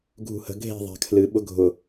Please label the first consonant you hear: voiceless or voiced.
voiced